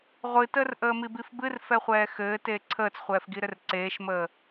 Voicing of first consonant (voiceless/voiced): voiced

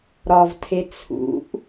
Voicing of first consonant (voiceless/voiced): voiced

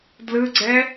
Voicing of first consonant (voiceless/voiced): voiced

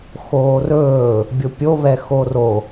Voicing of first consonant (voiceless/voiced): voiceless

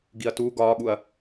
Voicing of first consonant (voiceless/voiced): voiced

